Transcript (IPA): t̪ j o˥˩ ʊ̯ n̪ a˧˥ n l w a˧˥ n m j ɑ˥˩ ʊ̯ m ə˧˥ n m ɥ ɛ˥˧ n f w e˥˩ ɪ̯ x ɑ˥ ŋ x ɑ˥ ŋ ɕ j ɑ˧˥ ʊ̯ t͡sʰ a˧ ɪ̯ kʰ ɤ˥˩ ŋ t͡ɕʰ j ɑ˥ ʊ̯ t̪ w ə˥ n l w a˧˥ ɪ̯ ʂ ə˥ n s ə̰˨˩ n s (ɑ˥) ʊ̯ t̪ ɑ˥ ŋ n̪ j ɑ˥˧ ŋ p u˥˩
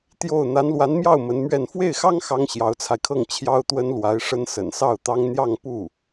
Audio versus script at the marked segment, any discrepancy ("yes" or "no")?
yes